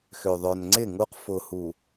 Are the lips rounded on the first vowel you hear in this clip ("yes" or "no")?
yes